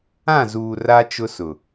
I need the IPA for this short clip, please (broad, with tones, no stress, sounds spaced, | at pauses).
ã˦˨ z uː˨ r a˦ t͡ʃ ʊ˦ s ʊ˨